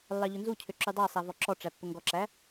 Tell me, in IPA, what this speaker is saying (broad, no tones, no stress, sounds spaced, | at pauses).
lː ɑ ʎ ɵ n z u cʰ ø ǁ y dˤ ɑ sˤ æ v ɔ ǁ ɔ ʈ͡ʂ æ pː ɵ ŋ ɡ ɔ ǁ æ